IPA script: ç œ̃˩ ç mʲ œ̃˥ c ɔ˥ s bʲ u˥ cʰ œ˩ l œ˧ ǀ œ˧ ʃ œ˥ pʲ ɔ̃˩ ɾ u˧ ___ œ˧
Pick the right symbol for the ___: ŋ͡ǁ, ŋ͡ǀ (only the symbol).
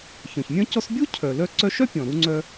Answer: ŋ͡ǀ